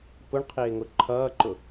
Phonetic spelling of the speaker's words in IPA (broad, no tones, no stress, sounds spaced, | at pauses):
p ʊ ɳ qʰ ɪː ŋ ʊ ǃʰ ʌː ǃ ʊ